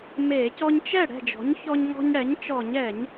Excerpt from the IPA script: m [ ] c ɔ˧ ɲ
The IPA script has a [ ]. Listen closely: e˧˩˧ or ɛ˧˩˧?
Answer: e˧˩˧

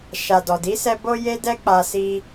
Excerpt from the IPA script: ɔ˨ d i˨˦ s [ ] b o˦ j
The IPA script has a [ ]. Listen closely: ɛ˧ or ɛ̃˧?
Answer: ɛ˧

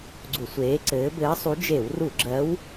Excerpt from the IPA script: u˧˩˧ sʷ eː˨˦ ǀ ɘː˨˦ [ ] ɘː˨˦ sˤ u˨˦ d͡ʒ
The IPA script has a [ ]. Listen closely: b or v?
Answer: b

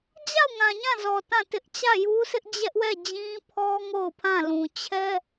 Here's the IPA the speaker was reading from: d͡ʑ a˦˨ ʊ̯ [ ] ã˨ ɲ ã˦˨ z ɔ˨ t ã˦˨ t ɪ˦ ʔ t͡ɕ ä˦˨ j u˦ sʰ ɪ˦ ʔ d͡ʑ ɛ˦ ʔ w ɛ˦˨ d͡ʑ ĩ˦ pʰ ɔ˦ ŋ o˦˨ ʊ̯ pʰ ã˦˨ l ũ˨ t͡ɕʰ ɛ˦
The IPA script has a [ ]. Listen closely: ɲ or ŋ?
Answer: ŋ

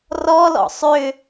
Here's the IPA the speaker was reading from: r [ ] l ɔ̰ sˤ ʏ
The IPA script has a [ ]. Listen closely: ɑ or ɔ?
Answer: ɔ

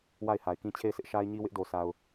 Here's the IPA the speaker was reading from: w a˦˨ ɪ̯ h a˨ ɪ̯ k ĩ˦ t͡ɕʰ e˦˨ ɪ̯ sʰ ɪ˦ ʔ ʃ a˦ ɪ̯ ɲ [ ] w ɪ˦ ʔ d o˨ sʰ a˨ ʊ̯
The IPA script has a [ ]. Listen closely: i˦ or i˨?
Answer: i˦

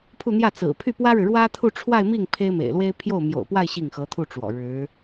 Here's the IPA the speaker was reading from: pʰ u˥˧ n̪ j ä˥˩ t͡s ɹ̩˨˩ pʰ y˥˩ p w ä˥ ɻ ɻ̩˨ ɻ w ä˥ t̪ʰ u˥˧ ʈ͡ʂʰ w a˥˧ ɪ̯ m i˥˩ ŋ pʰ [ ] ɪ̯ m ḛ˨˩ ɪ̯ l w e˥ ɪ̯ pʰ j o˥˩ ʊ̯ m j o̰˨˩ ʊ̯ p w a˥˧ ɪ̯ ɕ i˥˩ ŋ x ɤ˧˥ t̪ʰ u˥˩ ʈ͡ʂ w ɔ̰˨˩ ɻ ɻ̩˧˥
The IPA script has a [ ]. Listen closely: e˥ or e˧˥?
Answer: e˥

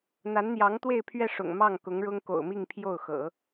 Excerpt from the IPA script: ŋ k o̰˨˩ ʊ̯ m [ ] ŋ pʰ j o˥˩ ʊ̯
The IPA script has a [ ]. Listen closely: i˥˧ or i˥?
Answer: i˥˧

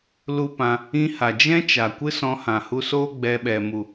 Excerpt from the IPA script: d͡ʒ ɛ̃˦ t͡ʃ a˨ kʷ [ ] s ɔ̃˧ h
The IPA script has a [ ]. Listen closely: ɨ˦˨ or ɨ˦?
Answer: ɨ˦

